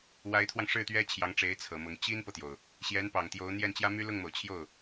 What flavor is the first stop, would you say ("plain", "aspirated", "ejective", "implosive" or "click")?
aspirated